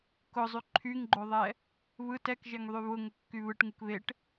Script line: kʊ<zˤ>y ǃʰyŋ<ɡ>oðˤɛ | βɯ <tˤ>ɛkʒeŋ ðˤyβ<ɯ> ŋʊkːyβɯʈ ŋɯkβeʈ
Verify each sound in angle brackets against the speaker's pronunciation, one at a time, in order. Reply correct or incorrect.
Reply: correct, incorrect, incorrect, incorrect

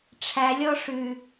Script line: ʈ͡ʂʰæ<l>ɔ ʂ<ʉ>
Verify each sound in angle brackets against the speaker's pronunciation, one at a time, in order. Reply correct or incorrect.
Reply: incorrect, correct

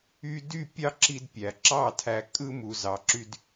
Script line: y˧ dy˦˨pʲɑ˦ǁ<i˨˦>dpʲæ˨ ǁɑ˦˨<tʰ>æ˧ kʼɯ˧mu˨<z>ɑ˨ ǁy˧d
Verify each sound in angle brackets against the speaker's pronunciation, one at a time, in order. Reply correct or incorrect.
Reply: incorrect, correct, correct

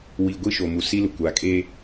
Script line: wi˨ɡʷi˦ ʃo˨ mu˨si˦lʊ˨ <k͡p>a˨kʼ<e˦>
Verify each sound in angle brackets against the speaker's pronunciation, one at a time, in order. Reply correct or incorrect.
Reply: incorrect, correct

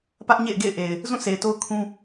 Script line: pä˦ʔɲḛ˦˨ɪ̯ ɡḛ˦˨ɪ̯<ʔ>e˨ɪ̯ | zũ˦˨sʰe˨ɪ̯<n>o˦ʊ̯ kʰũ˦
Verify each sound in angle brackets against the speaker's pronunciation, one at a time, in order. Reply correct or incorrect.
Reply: correct, incorrect

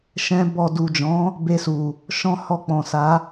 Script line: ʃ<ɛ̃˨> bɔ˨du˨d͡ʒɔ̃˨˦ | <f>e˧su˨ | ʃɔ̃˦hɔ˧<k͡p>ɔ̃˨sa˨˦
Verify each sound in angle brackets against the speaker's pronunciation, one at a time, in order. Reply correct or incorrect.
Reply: incorrect, incorrect, correct

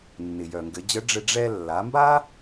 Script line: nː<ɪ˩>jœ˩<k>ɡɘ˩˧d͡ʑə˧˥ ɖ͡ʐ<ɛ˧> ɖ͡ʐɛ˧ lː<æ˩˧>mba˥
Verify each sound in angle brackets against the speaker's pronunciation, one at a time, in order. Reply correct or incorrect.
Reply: correct, incorrect, incorrect, incorrect

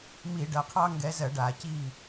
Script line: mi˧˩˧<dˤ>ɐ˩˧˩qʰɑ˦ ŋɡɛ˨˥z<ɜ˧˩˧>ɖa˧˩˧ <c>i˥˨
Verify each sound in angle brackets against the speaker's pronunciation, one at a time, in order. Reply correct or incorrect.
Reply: incorrect, correct, correct

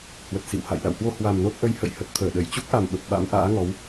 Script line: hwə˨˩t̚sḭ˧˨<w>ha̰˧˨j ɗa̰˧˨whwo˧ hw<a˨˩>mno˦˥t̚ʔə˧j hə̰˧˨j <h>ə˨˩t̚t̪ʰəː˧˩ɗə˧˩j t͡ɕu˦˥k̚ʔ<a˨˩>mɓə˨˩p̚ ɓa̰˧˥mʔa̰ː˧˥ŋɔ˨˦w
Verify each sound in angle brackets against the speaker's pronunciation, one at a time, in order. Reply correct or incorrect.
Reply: correct, correct, correct, correct

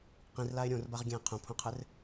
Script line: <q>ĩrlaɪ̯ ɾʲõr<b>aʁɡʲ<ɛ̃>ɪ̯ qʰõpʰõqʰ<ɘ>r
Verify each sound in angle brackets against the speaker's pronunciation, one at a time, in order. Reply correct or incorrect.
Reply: correct, correct, correct, correct

